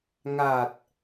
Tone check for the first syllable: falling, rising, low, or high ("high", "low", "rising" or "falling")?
low